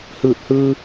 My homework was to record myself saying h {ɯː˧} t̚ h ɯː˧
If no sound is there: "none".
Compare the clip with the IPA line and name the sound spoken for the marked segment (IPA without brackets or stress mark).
ɯː˧˩